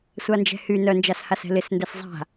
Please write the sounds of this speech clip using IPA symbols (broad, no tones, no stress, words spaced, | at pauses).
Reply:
sʷand͡ʒɛ̤hy nœnd͡ʒashasɛ̤ lɪs ndɛszˤa̤